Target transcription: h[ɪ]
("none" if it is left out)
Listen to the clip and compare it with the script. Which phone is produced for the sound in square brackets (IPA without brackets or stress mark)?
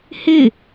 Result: ɪ